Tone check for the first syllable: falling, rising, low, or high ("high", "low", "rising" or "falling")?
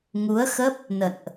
rising